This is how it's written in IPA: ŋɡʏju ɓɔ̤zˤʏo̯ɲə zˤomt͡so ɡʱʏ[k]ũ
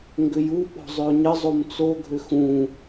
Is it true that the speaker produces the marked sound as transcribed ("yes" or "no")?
no